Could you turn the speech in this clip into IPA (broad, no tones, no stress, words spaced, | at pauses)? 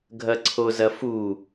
ɡʱɐǀʰozɐfu